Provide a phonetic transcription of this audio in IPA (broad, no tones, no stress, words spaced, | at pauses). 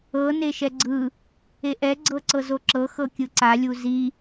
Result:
ɤ neʃɛɡ͡ǀɯ | eʔɛ ɡ͡ǀɤǀɤzoǁɤ xɤkʲɯǀa lʲuzi